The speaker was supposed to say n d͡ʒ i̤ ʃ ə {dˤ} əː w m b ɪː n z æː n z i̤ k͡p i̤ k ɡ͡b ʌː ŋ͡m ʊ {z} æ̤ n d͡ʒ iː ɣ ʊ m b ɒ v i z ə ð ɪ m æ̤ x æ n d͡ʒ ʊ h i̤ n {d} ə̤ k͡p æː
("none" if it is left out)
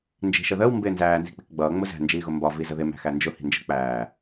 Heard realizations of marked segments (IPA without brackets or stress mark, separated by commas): ð, z, d͡ʒ